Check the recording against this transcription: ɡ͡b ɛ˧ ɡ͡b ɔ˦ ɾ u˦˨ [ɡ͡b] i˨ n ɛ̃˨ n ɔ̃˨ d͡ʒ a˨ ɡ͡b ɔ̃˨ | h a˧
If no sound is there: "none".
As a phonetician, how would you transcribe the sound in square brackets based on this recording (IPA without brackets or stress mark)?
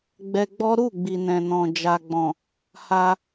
ɡ͡b